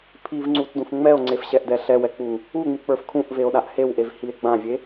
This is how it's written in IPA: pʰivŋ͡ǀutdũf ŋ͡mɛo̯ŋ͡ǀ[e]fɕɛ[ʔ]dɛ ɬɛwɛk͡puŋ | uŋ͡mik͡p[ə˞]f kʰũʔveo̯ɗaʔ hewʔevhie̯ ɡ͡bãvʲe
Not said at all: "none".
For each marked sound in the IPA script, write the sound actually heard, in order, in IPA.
e, ʔ, ə˞

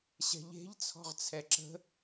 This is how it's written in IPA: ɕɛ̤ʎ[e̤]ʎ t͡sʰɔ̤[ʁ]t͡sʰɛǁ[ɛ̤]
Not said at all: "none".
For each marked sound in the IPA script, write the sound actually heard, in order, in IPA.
e̤, ʁ, ə̤

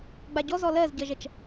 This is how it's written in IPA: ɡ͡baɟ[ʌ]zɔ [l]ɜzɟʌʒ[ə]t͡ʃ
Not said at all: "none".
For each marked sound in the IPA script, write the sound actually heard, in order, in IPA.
ɔ, l, ɐ

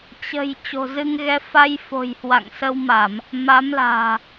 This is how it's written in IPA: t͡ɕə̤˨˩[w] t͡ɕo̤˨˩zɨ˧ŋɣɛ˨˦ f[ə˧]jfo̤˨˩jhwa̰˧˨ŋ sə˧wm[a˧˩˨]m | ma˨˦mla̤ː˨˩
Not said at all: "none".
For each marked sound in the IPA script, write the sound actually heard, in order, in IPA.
j, a˧, a˧˩˨

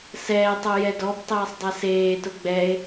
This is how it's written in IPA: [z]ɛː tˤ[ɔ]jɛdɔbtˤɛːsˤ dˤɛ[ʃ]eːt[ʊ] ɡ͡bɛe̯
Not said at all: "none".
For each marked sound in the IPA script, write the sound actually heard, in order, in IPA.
s, o, s, ʊ

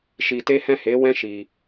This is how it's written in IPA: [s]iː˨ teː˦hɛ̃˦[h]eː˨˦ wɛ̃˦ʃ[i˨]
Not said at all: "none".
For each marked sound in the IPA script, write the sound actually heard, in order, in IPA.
ʃ, h, iː˨

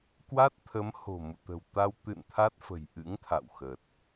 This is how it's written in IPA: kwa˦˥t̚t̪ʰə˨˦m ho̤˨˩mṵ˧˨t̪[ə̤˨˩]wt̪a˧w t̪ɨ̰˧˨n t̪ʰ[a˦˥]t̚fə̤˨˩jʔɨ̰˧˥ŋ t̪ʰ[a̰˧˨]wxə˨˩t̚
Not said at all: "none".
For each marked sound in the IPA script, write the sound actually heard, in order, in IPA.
ə̤˨˩, a˦˥, a̰˧˨

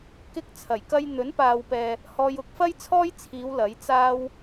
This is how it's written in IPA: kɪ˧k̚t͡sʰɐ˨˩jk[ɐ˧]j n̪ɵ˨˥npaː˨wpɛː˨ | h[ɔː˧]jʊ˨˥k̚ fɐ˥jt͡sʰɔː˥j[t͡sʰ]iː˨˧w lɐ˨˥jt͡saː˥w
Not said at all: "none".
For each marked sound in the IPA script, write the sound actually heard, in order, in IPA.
ɐ˧, ɔː˧, t͡sʰ

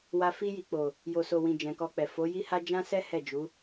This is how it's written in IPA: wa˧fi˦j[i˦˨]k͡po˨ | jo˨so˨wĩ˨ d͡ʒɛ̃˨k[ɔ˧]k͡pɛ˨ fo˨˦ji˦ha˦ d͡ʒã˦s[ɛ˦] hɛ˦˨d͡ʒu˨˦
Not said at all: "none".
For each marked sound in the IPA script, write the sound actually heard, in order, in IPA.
i˧, ɔ˧, ɛ˦

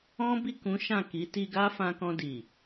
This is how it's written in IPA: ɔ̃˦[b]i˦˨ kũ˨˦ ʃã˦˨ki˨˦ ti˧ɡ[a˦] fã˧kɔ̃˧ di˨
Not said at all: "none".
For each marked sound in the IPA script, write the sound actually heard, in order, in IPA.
b, a˦

